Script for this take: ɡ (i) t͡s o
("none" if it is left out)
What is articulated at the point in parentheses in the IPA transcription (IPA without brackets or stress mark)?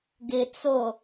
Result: ɪ